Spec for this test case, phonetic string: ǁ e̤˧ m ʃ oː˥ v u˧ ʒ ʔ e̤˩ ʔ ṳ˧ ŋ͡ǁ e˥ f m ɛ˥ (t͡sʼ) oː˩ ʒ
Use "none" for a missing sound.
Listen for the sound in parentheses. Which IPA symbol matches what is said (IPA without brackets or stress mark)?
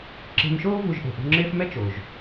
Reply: t͡ʃ